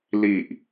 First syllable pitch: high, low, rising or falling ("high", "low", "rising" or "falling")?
low